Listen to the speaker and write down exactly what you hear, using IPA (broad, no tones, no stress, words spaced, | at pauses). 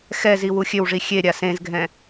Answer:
xɛzi wuxʲøwʐi xʲeɾʲa sẽzɡʱɛ̃